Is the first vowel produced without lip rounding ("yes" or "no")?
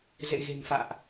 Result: yes